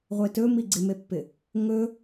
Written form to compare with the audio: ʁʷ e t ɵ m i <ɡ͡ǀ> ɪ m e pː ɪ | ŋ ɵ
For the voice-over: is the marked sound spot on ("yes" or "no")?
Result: yes